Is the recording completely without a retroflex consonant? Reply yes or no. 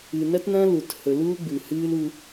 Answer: yes